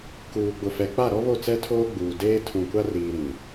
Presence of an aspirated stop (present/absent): present